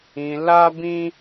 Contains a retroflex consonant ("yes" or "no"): no